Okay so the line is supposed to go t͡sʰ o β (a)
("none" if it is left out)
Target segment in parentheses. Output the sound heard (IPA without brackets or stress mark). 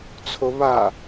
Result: a